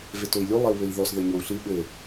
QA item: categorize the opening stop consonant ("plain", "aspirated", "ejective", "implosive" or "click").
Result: plain